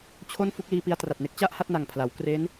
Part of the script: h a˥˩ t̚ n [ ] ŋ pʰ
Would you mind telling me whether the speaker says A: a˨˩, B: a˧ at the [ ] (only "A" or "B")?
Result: A